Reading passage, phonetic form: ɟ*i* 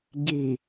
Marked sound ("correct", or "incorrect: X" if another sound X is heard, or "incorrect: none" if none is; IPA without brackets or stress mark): correct